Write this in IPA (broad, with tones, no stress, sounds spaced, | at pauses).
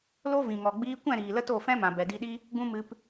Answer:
l o˦ v ĩ˨ ŋ ɔ˨ ɡ͡b iː˧ kʷ ɛ̃˦˨ ɾ iː˨ l ə˦ t o˦˨ f ɛ̃˦ m ã˨ b ɛ˨ d i˧ ɗ i˦ | ɡ ũ˦ m ɨ˧ p